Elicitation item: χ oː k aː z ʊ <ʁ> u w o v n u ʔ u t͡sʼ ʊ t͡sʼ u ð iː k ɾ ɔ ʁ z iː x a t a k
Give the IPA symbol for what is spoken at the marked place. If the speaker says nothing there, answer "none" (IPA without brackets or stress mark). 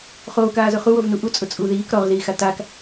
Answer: χ